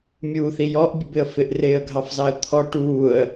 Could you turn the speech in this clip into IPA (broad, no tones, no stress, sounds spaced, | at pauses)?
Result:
mʲ uː θ i j ɔ ʔ bʲ ə b ɪ ə̯ f ɪ ʔ r ɪː ə̯ ɡʱ ɑ f z ɑ ə̯ t̪ʰ ɔ ʈ uː ə̯